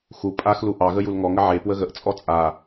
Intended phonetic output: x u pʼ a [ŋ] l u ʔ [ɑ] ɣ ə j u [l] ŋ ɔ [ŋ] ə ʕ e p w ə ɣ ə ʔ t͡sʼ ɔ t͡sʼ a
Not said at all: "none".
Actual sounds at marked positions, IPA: x, ɑ, l, ŋ

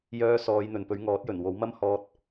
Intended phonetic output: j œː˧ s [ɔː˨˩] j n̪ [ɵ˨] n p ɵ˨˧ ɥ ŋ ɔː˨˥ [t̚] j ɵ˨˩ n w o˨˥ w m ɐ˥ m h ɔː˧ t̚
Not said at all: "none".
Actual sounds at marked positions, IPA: ɔː˨˧, ɵ˨, t̚

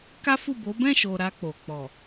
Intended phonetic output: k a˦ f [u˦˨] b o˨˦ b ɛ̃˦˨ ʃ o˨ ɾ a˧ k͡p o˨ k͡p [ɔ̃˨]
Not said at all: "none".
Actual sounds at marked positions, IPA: u˦˨, ɔ˨

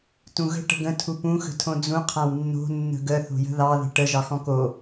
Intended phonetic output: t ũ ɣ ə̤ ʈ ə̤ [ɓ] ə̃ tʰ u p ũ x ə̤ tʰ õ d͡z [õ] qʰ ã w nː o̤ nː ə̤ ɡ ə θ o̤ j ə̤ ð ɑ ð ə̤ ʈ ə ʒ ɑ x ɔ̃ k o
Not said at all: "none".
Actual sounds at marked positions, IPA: ɡ, ũ

